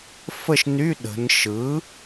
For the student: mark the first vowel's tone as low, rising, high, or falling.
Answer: falling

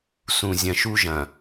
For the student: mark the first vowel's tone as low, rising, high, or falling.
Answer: low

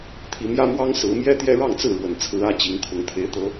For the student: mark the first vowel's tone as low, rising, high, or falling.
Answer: rising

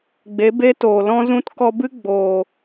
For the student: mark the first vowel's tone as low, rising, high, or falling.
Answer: rising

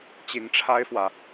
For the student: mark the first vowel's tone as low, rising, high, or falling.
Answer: low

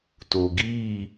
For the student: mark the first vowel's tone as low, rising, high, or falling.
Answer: low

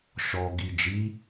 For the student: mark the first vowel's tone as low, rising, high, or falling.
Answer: low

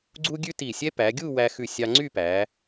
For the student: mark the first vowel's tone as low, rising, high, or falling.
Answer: high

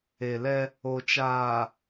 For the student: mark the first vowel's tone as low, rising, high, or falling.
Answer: low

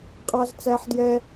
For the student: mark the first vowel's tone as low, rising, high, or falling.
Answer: high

